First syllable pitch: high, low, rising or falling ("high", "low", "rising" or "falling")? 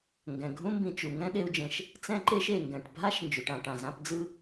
low